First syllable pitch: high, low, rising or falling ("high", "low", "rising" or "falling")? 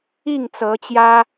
falling